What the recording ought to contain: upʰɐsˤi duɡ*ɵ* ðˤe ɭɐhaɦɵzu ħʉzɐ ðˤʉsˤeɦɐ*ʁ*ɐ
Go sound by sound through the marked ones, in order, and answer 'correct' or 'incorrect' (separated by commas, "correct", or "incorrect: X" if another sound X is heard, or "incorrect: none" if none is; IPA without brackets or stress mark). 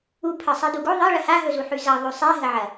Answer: incorrect: o, incorrect: ʕ